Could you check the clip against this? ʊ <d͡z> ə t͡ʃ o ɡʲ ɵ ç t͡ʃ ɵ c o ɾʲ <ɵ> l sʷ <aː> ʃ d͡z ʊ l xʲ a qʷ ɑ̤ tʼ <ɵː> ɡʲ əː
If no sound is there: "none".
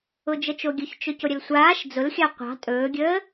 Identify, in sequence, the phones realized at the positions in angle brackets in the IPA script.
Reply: d͡ʒ, ə, aː, ɵː

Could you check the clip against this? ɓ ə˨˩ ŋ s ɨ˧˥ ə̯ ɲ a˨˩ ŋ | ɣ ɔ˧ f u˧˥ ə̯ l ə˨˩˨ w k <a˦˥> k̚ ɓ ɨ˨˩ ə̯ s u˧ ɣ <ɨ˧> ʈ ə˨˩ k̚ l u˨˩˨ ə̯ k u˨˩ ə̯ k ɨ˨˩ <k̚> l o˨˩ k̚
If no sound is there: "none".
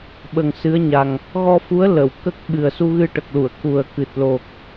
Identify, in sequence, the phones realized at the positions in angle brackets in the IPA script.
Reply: ə˦˥, ɨ˧, t̚

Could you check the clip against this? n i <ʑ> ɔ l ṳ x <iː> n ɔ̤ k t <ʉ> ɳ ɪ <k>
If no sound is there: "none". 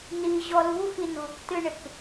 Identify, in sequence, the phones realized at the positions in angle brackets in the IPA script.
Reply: ʑ, i, ɨ, k

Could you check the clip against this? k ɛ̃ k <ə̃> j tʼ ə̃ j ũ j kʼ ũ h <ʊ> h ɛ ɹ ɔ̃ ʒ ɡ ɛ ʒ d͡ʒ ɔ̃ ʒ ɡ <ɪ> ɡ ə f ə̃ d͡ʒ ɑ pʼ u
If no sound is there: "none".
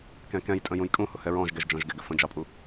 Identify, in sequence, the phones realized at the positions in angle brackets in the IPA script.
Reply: ɛ̃, ʊ, ɪ

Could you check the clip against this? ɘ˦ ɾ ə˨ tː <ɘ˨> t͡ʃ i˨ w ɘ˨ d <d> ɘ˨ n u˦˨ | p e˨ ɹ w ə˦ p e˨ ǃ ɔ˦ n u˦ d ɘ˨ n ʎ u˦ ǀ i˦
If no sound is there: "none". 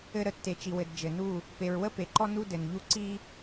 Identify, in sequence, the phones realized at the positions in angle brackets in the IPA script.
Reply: e˨, d͡ʒ

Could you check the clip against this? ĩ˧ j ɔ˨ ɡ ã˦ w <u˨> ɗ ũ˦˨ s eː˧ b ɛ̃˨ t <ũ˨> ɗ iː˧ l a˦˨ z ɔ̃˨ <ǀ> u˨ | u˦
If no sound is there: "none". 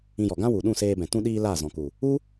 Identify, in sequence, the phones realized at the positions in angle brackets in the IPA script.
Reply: u˨, ũ˧, k

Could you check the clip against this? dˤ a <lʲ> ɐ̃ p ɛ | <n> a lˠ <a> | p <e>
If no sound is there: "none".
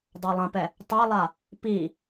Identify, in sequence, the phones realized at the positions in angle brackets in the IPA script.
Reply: lˠ, tˤ, a, i

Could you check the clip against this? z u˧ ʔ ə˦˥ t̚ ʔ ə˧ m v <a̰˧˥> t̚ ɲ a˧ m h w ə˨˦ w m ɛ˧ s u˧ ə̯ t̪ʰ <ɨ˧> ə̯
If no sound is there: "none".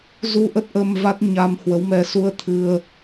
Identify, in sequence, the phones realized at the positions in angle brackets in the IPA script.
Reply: a˦˥, ɨ˧

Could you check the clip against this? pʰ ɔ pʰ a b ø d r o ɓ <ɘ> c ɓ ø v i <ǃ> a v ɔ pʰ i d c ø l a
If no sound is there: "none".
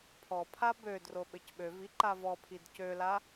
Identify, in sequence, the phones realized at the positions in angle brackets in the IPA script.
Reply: ɘ, ǃ

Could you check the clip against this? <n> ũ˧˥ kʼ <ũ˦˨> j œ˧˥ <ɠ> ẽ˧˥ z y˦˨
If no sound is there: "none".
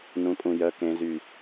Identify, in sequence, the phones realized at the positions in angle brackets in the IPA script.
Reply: n, ũ˦˨, k

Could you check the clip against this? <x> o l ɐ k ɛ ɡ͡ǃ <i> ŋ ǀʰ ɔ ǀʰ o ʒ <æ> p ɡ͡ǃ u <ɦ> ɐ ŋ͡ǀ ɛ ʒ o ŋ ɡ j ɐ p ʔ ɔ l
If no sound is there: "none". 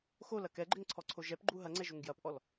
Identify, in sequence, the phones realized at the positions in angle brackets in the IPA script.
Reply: x, ɪ, ɛ, ɦ

